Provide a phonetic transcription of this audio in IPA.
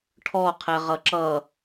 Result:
ʈʰ ɔ qʰ ɛ ʁ ʌ ǁ ʌ

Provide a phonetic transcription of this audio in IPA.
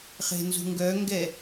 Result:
χ e̤ n z ṳ ŋ ɡ œ ŋ ɡ ɛ

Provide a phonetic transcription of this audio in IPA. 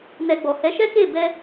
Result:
n ɛ˧ ɡ͡b ɔ˨ h ɛ˨˦ ʃ ɛ˦ k e˦˨ b ɛ˧

